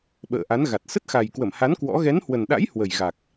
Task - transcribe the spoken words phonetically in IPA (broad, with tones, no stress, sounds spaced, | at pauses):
ɓ ə̰ː˧˨ ʔ a˨˦ n ɣ a˨˩ t̚ s ə˦˥ t̚ x a˨˩ j k w ə˧˩ m h a˨˦ n k w ɔ̰˧˥ ɣ ɛ˨˦ n h w ə˨˩ n ɗ a̰˧˥ j h w ə˨˩ j ɣ a˨˩ k̚